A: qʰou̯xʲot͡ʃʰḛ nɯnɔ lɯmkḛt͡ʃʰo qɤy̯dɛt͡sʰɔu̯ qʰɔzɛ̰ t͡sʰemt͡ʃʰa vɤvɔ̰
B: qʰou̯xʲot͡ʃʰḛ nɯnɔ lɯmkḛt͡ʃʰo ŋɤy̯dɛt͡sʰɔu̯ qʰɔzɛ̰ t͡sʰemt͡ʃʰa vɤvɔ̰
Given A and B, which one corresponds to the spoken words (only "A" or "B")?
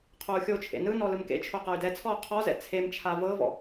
A